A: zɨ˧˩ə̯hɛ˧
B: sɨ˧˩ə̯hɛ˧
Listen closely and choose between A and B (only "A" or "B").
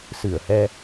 B